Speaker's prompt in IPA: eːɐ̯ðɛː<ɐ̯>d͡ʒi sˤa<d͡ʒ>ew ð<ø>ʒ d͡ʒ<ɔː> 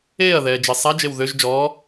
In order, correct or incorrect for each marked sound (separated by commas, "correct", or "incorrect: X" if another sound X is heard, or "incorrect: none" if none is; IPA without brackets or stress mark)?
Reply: incorrect: none, correct, correct, correct